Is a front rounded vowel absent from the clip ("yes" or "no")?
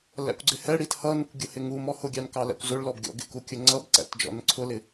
yes